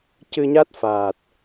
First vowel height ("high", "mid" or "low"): high